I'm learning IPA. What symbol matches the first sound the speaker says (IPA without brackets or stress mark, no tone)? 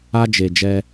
a